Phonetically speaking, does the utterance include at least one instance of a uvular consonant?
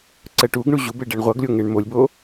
yes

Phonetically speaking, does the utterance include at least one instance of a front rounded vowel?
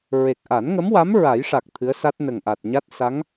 no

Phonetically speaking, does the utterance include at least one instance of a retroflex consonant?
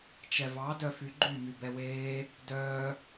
no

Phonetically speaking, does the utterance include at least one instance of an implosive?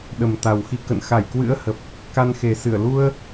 yes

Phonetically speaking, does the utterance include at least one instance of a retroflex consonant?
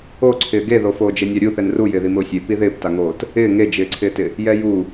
no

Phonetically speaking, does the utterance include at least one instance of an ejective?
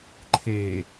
no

